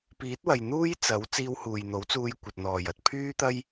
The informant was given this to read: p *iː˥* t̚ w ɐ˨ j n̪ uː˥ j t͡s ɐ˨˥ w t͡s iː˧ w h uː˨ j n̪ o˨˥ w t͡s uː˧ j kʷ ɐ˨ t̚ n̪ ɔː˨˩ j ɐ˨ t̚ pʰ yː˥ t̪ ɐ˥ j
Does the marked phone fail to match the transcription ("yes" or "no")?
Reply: yes